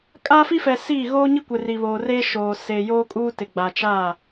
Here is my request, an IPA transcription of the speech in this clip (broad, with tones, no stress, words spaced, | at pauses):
kʼaː˦fi˦fɛ˨ siː˦˨ ɣoː˦ɲi˦kʷɪ˨ ri˨βoː˨reː˦ʃoː˨ seː˨joː˦kʼuː˦ tɪ˨ɡ͡ba˨ t͡ʃa˦˨